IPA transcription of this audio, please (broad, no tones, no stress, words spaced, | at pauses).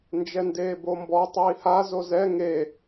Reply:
nd͡ʒɛndeːbombɔ tˤiːha zozɛ ŋe